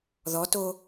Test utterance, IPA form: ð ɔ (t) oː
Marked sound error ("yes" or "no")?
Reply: no